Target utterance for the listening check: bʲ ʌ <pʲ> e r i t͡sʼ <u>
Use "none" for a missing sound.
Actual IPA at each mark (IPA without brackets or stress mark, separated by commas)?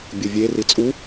vʲ, u